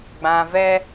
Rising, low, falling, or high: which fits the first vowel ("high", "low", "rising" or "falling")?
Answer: low